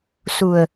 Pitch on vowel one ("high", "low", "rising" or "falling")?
low